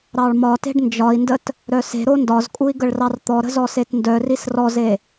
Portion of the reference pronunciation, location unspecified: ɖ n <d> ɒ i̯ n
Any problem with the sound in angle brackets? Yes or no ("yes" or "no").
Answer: yes